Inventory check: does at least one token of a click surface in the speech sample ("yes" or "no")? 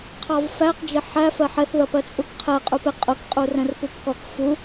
no